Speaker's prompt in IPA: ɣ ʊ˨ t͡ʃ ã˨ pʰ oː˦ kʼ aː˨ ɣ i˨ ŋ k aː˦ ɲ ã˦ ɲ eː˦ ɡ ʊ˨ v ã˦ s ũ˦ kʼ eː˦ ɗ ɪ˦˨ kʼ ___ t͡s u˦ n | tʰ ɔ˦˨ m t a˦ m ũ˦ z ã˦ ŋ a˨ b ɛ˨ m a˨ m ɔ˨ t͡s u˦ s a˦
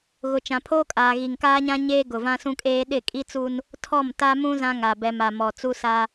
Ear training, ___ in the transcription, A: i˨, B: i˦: B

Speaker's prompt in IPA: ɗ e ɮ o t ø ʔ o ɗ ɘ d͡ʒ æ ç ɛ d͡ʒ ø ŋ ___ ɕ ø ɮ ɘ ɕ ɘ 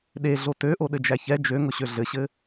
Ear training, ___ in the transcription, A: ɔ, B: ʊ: B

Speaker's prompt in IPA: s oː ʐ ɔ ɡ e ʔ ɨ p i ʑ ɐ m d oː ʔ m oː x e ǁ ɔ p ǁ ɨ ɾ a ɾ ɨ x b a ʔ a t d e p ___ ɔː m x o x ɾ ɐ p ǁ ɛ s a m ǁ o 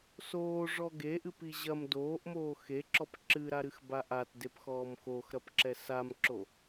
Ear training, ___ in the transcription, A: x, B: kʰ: A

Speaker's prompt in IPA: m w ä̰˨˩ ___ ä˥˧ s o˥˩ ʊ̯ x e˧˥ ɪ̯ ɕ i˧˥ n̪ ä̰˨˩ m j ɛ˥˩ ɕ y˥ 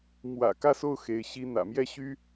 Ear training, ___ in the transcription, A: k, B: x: A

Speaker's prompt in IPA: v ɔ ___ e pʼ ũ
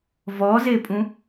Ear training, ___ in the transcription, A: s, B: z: B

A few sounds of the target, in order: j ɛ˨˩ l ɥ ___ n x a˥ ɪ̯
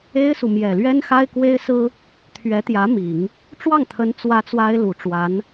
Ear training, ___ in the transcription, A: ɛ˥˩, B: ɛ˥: B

